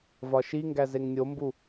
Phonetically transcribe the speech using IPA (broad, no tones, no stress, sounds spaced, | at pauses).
v ɒ ʃ i ŋ ɡ æ z e ŋ nʲ o m b u